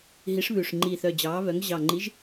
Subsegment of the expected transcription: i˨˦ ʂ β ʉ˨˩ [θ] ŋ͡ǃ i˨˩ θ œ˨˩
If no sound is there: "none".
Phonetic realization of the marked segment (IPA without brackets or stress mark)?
ʂ